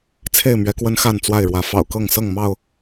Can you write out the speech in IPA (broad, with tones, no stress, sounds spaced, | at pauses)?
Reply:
t͡sʰ e˥˨ ɪ̯ m ɥ ɛ˨˦ k w ə˦ n x a˥˨ n t͡s w a˥˨ ɪ̯ ɻ w ä˨˦ f ɑ̰˨˩ ʊ̯ k ɤ˥˨ ŋ s ɤ˥˨ ŋ m ɑ˥˨ ʊ̯